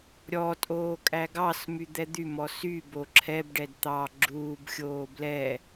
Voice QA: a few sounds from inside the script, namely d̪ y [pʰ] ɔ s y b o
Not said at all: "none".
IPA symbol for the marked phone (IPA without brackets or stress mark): m